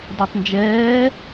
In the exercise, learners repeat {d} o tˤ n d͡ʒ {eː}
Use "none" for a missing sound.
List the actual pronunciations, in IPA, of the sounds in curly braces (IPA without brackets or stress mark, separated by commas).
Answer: d, ɛː